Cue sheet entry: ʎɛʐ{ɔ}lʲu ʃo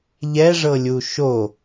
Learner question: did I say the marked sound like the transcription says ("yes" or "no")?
no